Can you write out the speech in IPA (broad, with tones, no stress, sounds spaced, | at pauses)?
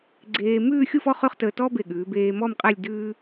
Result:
ɡ͡ǀ eː˧ m ʉː˥˧ xʲ u˥˧ f ɔ˥ χ ʉ˥˧ χ t əː˧ t ɔ˥ b e˧˩ ɠ ʉː˩˧ b eː˧ m ɔ˥˧ m qʼ ɛ˥˧ lʲ d ʉː˥